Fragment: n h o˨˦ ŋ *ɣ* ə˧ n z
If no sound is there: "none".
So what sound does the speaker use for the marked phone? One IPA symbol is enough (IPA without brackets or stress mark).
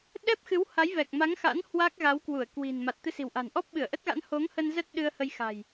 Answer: h